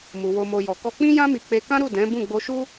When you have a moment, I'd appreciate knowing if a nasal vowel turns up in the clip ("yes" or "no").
yes